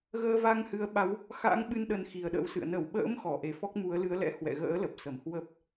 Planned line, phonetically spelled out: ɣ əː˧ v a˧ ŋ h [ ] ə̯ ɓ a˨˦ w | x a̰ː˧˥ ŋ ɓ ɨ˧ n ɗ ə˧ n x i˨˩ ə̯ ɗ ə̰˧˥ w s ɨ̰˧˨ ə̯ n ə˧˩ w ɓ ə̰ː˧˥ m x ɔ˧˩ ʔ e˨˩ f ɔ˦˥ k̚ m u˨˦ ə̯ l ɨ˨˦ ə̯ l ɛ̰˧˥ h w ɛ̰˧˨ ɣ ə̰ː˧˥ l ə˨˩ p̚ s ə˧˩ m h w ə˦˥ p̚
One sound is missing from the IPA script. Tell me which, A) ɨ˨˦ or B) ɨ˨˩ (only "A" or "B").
A